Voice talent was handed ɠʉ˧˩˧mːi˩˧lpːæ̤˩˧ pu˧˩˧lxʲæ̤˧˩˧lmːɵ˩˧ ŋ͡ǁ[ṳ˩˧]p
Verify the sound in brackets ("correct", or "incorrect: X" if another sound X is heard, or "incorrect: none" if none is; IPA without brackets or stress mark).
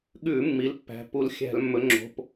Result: incorrect: o̤˩˧